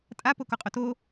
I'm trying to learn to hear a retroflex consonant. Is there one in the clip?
no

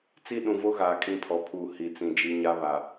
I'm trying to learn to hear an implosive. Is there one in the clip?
yes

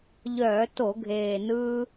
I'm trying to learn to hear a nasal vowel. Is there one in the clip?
no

